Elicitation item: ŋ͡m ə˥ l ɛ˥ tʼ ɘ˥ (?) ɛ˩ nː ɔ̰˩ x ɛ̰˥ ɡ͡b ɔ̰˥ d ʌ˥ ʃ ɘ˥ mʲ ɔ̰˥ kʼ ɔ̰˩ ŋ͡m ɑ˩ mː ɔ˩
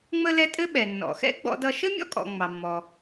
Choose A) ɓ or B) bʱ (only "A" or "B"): A